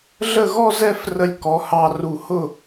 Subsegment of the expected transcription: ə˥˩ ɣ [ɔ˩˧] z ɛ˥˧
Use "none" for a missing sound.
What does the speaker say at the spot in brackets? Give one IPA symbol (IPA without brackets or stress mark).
ɔ˥˧